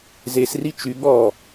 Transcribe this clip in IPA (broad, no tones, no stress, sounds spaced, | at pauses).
z e s r i t͡ʃ y ɠ ɔ